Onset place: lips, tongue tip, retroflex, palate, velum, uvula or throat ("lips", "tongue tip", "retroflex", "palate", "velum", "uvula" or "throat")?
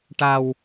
retroflex